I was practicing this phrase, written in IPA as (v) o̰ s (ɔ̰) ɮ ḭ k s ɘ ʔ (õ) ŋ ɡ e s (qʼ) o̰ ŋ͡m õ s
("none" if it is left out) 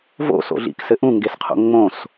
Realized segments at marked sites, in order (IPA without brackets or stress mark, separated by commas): v, o̰, ũ, qʰ